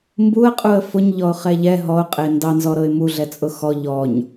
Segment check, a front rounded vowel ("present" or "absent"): absent